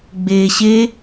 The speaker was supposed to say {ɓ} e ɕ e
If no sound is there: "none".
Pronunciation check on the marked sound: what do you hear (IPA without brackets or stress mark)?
ɡ͡b